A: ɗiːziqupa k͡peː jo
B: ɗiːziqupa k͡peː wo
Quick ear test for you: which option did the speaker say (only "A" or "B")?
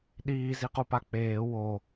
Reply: B